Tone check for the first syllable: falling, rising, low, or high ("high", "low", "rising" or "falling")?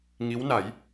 rising